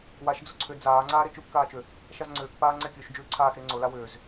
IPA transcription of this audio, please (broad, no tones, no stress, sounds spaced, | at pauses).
w a ʃ d͡z ʊ ǀʰ ʏ d͡z aː ŋ͡ǀ aː ɾ e t͡ʃ ʉ p k aː t͡ʃ ʏ | ʃ a z ŋ͡ǀ ʏː k p aː ŋ͡ǀ ɛ kʲ ʉ ʃ d͡ʒ ʉː ǀʰ aː x ɾ e ŋ͡ǀ ʊ l a w ʏː z